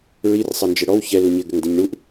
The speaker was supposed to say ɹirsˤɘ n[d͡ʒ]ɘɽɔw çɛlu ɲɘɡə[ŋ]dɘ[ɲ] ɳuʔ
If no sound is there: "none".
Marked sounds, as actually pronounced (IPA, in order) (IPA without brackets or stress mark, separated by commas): d͡ʒ, ŋ, ɲ